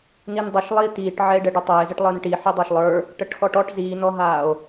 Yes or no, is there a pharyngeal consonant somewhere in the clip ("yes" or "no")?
yes